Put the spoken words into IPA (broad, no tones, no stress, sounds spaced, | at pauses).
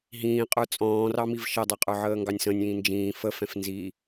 ɦ ĩː qʼ ə˞ t͡sʼ ɔ̃ː r ɑ m i v ʃ ʌ dˤ æ qʼ ə˞ ʕ əː ŋ ɡ ɑ nʲ s ə̃ nʲ ĩː n d͡ʒ ĩː f ə f ɛ̃ f n z i